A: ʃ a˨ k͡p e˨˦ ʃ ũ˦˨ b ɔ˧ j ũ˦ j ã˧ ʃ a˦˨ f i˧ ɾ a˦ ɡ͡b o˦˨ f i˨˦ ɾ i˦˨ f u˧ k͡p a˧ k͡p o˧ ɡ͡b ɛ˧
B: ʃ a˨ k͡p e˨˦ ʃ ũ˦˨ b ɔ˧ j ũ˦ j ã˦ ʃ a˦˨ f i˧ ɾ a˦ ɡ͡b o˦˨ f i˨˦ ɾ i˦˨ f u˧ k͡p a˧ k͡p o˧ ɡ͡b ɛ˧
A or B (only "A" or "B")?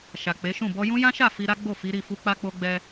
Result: B